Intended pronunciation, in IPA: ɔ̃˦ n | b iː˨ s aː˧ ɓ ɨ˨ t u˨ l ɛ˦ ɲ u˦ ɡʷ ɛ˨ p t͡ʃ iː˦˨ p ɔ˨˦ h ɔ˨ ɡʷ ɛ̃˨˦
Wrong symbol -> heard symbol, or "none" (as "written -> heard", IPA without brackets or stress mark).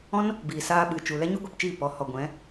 t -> t͡ʃ